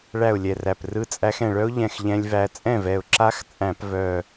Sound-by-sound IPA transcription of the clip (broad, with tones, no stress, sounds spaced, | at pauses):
ɭ æ˥˩ ʊ̯ lʲ ɛ˧˩ r æ˧˩ p r ɯ˦˥ t͡sʼ æ˦˥ x ɛ̃˧˩ ɭ œ˦˥ ʊ̯ ʎ ɛ̃˧˩ x ʎ ɛ̃˦˥ lʲ v æ˦˥ t͡sʼ ɛ̃˥˩ v ɛ˧˩ ʊ̯ ǁ a˦˥ x t͡sʼ æ̃˧˩˧ p v œ˧˩